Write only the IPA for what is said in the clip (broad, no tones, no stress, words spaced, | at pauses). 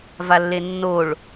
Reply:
valːenːoɭ